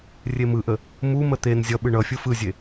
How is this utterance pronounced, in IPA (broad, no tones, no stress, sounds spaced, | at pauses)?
rʲ e m ɯ ʔ ə | m u m ə t̪ e n zʲ ʌ ɓ ɯ ɳ ʌ fʲ ɯ f ɯ zʲ e